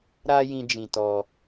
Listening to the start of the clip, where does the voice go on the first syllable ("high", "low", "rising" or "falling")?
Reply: high